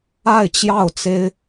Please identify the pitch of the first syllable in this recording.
falling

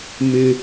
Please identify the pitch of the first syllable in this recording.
low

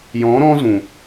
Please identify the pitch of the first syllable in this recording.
rising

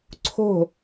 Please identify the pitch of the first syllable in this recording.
falling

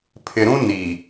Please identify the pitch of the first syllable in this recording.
low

